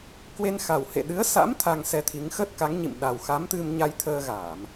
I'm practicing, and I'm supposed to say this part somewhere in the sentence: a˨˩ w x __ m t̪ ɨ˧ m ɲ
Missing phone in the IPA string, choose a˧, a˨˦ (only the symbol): a˨˦